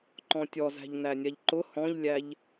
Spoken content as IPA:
ǃ ɔ̃ tʲ ɔ z æ̤ ʎ n æ nʲ a ʎ ǃ ʊ h ɔ̃ ʎ lʲ æ ʎ

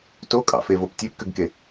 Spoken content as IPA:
t o kʼ ɑ̰ f e v o p tʲ e p k ø ɡ k e

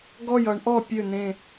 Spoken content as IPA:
ɡ ɔ˦˨ j ʌ˨˦ ɳ ʔ ɔ˦˨ pʲ ø˦˨ n̪ ẽ˦˨

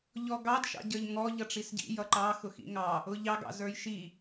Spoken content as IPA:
ʎ ɔ ɡ ɑ d ʃ ɑ̰ ɟ ə˞ ʎ ŋ ɔ ʎ ʌ ʈ͡ʂ i s ɟ ḭ j ʌ ǃ ɑ x ʊ x ḭ ŋ ɑ | ʊ ʎ ɑ ɡ ɑ̰ z ə˞ j ʃ i

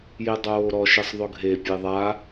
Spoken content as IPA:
j e dˤ oː ɾ ɔ ʃ ɪ sˤ ðˤ ʊ ɡʱ e pʲ e ðˤ a

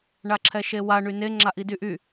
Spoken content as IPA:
ɳ a ǁʰ ɛ ʃ e w a ɳ y n e ŋ͡ǁ a ʔ i d y ʔ y

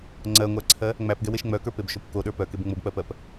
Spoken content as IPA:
ŋ͡ǀ ɜ ŋʷ æ ǀʰ ɜ | ŋ͡m æ p ɡ ɛ w e ʃ ŋ͡m œ k ə˞ p e b ʃ o p k o ɗ ə˞ p œ k e b ŋ͡m o b k͡p ɜ p ɜ p

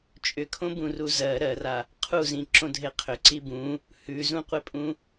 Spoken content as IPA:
t͡ʃʼ ʏ kʰ õ b ũ r u z ɜ ɾ ɜ r a | qʰ u z ĩ ǁ õ dʱ e qʰ ʏ ǀ i b ũ | h ʉ z ũ qʷ e pʼ ũ

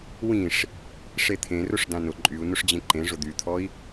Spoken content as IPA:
w ĩ ʂ | ʂ e t̪ʰ ẽ r ʊ ʂ d ã n ʊ ǃʼ y u̯ n ʊ ʂ d͡ʑ ẽ ǃ ẽ ʐ ʊ d̪ y t̪ʰ ɔ i̯

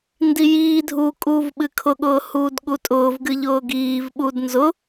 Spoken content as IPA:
n d i j iː dʱ uː kʼ uː v ɓ ɨ kʰ ʊ ɠ ʊː h uː d ɠ u tʼ ʊː v ɡ ɨ ʎ ʊː ɡ iː v ɓ u d n z ʊ

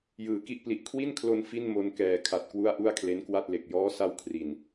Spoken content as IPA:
j ɯː˩˦ k i˥˩ ʔ p l i˨˩ ʔ kʰ w i˥˩ n kʰ l o˧ n f i˥˩ n m o˧ n k ɛː˨˩ kʰ a˨˩ t̚ k w u˥˩ a̯ ʔ u˥˩ a̯ kʰ l e˦˥ n k w a˥˩ t̚ l e˨˩ k̚ j ɔː˦˥ s a˧ w kʰ r i˨˩ n

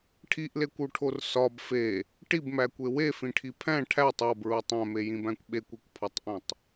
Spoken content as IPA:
ʈʰ i ʔ l e kʷ u ʈʰ o r s ɒ b f e | ʈ i b m æ kʷ e w e f ĩ ʈʰ i pʰ æ̃ ʈʰ æ tˤ ɒ b ɹ u tˤ æ̃ m e j ĩ b æ̃ kʷ ɓ e kʷ e kʷ pʰ ɒ tˤ ʔ ẽ tˤ

